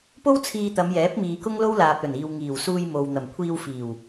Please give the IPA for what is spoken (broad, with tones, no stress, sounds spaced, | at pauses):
p o˥ w t͡sʰ iː˧ t̪ ɐ˨˧ m j ɛː˨˥ p̚ m iː˨ k ʊ˥ ŋ l o˥ w l aː˨ p̚ l ɵ˨˩ n iː˨ w ŋ iː˨˩ w s uː˧ j m o˨ w n̪ ɐ˨˩ m kʷʰ iː˧ w f iː˨˩ w